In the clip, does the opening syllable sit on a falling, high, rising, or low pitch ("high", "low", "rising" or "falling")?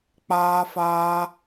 high